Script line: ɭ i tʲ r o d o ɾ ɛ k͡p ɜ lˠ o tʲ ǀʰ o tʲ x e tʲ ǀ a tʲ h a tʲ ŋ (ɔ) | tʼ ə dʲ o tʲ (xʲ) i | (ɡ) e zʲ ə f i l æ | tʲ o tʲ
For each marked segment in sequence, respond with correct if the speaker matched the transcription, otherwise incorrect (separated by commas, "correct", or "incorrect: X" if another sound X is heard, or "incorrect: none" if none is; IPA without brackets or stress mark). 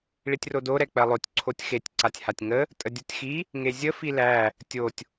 incorrect: ə, incorrect: x, incorrect: ŋ